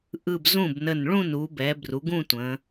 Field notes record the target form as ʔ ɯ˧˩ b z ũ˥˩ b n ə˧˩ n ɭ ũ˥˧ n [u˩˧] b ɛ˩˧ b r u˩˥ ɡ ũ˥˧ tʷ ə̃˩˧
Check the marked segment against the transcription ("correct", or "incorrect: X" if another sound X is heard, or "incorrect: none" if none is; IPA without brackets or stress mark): correct